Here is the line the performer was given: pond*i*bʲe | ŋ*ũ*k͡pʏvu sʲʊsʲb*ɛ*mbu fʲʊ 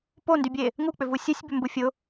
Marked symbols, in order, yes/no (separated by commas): no, no, no